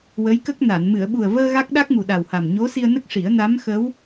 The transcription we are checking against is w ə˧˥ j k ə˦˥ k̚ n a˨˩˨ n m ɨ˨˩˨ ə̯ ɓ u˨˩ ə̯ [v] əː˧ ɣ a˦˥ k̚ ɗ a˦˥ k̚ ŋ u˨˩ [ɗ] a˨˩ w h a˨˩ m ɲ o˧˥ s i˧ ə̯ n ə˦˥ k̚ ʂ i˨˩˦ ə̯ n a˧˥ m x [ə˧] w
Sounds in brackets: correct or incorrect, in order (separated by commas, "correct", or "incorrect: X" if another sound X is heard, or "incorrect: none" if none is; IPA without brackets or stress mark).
correct, correct, incorrect: ə˧˥